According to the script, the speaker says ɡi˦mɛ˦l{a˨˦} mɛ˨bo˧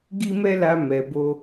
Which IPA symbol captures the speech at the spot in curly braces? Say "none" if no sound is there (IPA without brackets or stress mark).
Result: a˧